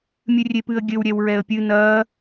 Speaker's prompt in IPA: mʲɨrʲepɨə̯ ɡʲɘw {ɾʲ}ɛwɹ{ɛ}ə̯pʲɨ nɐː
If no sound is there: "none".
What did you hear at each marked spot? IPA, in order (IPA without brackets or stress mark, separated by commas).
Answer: ɾʲ, ɛ